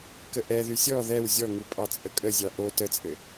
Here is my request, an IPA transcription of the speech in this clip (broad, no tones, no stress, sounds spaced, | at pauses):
k ə ʔ ɛ ð y sʲ ɔ ð ɛ w zʲ ɔ ŋ u pʼ ɑ t͡sʼ ə kʼ ə zʲ ɑ ʔ o t ə t͡sʼ ɘ